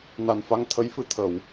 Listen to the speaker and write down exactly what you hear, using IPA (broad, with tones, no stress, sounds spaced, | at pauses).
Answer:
n a˨˩ n f a˧ ŋ t̪ʰ ə˧˥ j f ɨ˧ t̪ʰ ə˨˩˦ w